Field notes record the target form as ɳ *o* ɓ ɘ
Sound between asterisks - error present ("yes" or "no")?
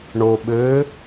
no